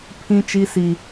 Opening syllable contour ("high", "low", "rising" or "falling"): high